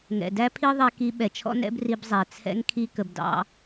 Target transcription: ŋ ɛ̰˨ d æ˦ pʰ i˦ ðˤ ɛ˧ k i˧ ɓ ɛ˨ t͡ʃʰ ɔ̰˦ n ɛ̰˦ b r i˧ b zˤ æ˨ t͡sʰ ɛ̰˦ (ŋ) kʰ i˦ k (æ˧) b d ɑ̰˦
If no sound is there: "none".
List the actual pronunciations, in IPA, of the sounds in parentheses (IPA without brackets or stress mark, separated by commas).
ŋ, ə˧